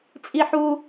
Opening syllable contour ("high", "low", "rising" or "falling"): high